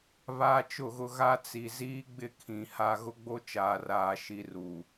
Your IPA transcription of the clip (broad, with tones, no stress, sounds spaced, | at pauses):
β aː˦ t͡ʃ ʊ˦˨ ɣ ʊ˦ ɣ a˦ t͡s i˨ z iː˦ ɡ͡b ɪ˦˨ kʰ ĩ˨ h a˦ ɣ ʊ˦ ɡ͡b o˦ t͡ʃ aː˨ r aː˨ ʃ i˦ r u˨